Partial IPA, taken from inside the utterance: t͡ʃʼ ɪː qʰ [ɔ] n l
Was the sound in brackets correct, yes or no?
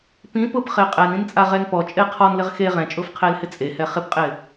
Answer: yes